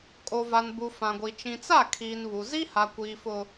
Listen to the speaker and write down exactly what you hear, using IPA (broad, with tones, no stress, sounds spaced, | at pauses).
kʼ o˨ v a˨ n b u˨ f ã˨ ɡʷ i˨ t͡ʃ ĩ˨ t͡s a˦˨ kʰ iː˨ n β u˨ z i˦ h a˨ kʷ iː˨ f ʊ˦